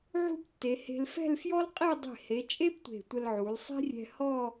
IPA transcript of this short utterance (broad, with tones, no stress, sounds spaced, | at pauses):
ʕ ṳ˥ b tː e˩˧ h e̤˧ l f ɛ̤˥˧ l f j ɔ˥ l qʼ i˥˧ dˤ e̤˧˩ h e˩˧ t͡ʃʼ e˥ b tʷ e̤˧˩ tʷ ə˧ l ʕ u˩˧ l sˤ i̤˥ rʲ ɛ̤˧ h ɔ˥˧